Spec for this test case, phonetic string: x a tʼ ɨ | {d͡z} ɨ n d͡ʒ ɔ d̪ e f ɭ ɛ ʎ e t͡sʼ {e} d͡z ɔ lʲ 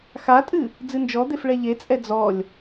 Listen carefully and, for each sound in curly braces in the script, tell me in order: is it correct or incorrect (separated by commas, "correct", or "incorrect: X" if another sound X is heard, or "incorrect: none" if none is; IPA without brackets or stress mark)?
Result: correct, incorrect: ɛ